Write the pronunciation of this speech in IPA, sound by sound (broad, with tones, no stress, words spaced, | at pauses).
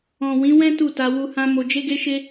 ɔ̃˨ wĩ˨˦wɛ̃˦ tu˦˨ta˧wu˧hã˦ mo˧d͡ʒe˦ɡe˦ʃe˦